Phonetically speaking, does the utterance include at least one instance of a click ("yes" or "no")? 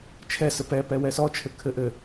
no